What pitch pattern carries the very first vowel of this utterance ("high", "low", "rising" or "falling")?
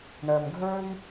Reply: low